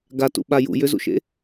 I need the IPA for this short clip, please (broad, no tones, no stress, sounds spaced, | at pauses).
ɡ a t ṵ ɓ a j ṵ j ʏ z ṵ ʃ ḛ